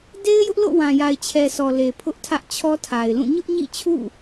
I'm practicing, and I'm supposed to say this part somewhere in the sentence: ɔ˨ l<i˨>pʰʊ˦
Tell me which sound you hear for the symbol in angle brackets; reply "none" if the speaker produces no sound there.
e˨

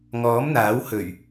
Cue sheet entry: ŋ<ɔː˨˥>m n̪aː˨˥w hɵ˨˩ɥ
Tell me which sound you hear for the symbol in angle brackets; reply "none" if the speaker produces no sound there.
ɔː˨˥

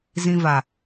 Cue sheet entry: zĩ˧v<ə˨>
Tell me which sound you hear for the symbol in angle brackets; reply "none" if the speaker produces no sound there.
a˨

